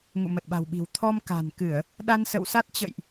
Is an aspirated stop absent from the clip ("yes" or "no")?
no